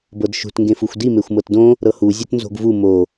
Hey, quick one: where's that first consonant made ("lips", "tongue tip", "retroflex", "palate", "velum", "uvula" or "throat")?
lips